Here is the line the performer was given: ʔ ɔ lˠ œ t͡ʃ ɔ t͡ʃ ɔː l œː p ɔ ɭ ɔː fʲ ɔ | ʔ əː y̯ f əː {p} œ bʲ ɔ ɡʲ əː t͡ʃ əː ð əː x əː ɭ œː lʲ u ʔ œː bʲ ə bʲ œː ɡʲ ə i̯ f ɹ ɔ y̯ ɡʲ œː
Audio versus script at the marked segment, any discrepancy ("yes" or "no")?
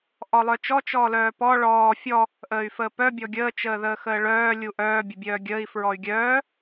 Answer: no